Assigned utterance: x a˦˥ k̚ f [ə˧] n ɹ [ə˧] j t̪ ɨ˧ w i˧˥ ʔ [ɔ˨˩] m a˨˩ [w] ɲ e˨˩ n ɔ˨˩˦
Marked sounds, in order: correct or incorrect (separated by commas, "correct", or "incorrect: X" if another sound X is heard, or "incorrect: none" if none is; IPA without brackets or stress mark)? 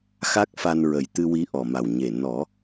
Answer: incorrect: a˧, incorrect: ə˨˩, correct, correct